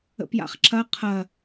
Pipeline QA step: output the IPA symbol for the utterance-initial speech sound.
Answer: ə̰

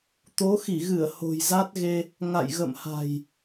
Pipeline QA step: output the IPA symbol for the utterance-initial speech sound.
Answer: t̪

